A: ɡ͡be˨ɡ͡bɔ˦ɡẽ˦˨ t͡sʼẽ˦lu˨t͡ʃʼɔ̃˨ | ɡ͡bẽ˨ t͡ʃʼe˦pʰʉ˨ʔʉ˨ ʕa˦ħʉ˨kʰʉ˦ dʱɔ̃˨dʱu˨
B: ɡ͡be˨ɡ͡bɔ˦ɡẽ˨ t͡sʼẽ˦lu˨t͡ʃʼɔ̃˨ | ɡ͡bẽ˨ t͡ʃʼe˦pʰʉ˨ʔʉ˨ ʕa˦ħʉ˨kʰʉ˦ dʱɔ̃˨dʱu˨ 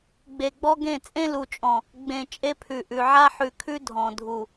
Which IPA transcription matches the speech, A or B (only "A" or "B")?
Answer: A